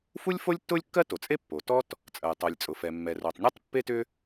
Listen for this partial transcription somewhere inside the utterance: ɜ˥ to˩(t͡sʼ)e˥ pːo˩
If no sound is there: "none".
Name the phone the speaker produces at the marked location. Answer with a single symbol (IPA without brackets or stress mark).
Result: t͡sʼ